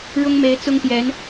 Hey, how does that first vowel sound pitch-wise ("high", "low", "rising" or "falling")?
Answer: high